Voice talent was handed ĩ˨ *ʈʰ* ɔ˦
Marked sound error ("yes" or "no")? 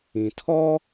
yes